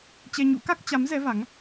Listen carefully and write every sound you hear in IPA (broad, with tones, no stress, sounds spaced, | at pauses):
t͡ɕ ɛ˧ ɲ ṵ˧˥ k a˦˥ k̚ t͡ɕ a˨˦ m z ɛ˨˦ v a˨˦ ŋ